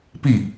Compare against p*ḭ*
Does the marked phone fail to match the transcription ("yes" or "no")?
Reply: yes